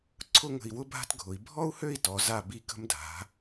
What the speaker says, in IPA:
ǀʰʊ˥˧ŋə̤˧˩i̯ wʊ˥bʱa̤˥tɡʱʊ˩˧i̯ bʱɔ˥u̯hø˥˧i̯tɔ˩˧za˧˩ bi˧ kə̤˧mdʱa̤˩˧

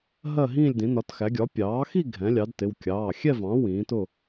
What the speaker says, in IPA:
ɦɜ˥˨ɦĩː˥˨lʲdĩ˩˥ nɒ˩˥txæ˩˥ ɡʲɒ˩˥pʲɑː˩˥xi˥˨ ɡʱɛ̃˩˥lʲɑ˩˥dtɪ˩˧˩w kʲɑː˩˧˩xʲɛ˥˨vɑ̃˩˥ wĩː˩˥tʊ˥˨

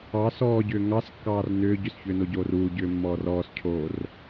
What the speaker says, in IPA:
ɑ sɔːɟʏː ŋɑskːɑːr nʏː ɟʏsçʏːnoɟoːr uːɟʏːmːɔːr ɔːscʰoːr

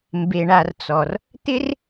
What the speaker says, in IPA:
mbe˨ɳa˨r t͡sɔ˨r | t̪ɪ˥r

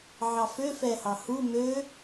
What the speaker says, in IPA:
ʕɑfø fɛhɑhu mø

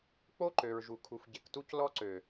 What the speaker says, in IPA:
k͡po˦ǃø˨ɹʒu˨ kʰu˨fɟe˨ktu˦c lɔ˦ǀø˨

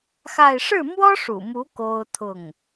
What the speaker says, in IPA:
xa˥˧ɪ̯ ʂɻ̩˥˩mwɔ˥ʂṵ˨˩mu˧˥ ko˥ʊ̯t̪ʰʊ˥˩ŋ

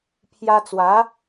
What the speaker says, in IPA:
pʰja˧t͡swa˨˦

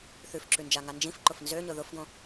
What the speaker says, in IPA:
θʉfǁʉnd͡ʒaŋa nd͡ʒĩfǃʊf nzøɲʊ ðʊfɡõ

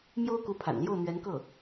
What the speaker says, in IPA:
mjo˥ʊ̯ku˧˥pʰa̰˨˩n ljo˥˩ʊ̯n̪ɥɛ˧˥nkɤ˥˩

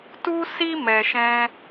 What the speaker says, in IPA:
tu˦si˦ mɛ˨ʃɛ̃˧

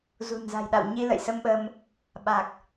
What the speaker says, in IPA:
zṳ˨˩nza̤˨˩jɗa̰˧˨w ɲi˧lə̰˧˨jsə˧mɓə˧m | ɓa˨˩k̚

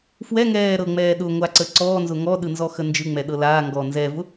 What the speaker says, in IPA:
fwɛŋɛː ɾɤŋ͡mɛː ɗʊŋʷaǀə ǀɔːnzʊ ŋɔɗɯnzɔxə nd͡ʒɯŋ͡mɛɗɤ laːŋɡɔː nzɛvʊ

